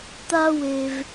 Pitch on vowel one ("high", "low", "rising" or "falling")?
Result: high